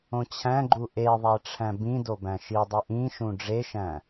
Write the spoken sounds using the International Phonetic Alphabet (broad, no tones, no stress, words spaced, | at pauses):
õt͡ɕʰæ̃ɡ͡ǃu ʔe ðˤæʈ͡ʂʰæ̃bĩdo bæ̃ʃidˤi ʔĩʃũ ɖ͡ʐeʃæ̃